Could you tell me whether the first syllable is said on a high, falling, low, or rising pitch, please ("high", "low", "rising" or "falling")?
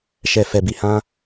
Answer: low